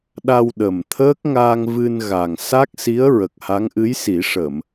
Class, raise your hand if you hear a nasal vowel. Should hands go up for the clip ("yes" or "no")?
no